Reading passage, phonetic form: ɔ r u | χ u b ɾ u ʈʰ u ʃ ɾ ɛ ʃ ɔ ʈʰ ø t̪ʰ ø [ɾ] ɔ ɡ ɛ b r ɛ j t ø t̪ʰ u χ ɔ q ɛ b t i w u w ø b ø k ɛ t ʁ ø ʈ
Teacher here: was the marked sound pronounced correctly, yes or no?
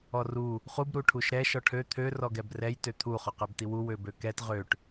no